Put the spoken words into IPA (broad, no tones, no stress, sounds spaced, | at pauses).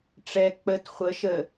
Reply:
ʈ͡ʂ ɛ k͡p ə t χʷ ə ʃ ə